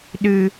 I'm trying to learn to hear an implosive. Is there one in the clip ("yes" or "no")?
yes